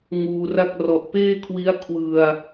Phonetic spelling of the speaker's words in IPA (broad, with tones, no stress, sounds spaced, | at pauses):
ŋ uː˧ r a˥˩ k̚ r ɔ˨˩ ʔ p eː˥˩ kʰ w i˦˥ a̯ kʰ w ɯ˧ a̯